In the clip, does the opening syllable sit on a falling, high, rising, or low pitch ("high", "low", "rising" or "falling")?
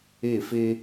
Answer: falling